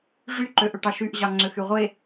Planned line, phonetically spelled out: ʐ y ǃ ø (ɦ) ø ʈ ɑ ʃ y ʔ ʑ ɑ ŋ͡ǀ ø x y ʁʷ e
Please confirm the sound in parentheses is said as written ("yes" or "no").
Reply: no